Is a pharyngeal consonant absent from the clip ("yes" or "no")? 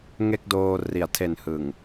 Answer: yes